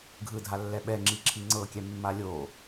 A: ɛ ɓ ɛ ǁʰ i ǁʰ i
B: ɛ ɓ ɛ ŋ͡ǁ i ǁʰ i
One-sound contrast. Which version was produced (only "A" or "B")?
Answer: B